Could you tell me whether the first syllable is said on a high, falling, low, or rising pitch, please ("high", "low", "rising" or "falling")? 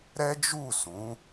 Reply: high